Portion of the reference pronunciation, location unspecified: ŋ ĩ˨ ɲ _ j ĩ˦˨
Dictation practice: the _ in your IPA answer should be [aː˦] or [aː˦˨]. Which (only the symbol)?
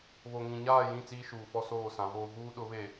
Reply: aː˦˨